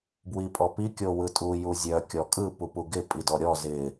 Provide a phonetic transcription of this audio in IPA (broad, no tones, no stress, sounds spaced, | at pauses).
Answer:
b w i pʼ ɔ p i kʲ o w ɯ tʼ u j u zʲ œ kʲ ɔ kʼ ɯ p u p u ɡ ɪ pʼ i d ɔ ɾʲ ɔ z ɪ